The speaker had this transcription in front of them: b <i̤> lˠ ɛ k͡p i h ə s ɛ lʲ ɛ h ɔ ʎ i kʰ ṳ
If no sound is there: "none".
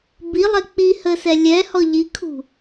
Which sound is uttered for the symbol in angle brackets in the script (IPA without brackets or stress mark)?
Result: i